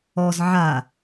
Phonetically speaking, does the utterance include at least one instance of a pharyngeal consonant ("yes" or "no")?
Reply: yes